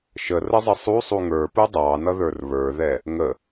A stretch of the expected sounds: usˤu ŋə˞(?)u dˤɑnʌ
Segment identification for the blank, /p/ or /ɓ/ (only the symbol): p